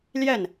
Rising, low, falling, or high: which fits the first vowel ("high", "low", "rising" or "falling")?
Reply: falling